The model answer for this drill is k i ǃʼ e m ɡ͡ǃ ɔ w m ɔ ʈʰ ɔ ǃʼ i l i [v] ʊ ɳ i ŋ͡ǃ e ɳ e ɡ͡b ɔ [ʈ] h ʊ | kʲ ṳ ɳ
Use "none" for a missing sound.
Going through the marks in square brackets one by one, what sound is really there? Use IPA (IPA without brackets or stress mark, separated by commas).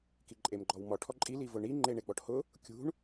v, ʈ